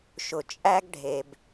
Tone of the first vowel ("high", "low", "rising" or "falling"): low